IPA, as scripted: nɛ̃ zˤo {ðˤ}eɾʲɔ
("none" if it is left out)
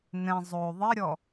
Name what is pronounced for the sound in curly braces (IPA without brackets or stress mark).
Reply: ðˤ